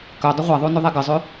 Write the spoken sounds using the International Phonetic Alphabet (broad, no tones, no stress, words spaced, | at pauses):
kœ dˤəʁʷaðˤonø ðˤeɡəzˤø